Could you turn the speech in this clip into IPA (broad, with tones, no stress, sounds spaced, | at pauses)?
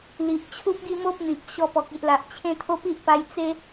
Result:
l i˨ ʔ t͡ɕʰ u˦ p̚ ɡ i˥˧ m o˦ p̚ n̪ i˨ p̚ ɕ ɔ˧ p ɔ˨ k̚ i˨ ʔ l a˨ ʔ t͡ɕʰ ẽ˥˧ t̪ʰ o˦ p i˦ ʔ p a˧ j t͡s e˦